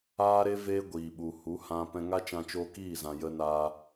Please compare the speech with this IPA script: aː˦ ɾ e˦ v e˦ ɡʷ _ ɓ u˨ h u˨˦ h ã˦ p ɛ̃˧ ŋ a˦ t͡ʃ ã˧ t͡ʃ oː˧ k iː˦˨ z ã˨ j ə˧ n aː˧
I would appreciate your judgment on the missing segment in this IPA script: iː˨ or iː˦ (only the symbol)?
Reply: iː˨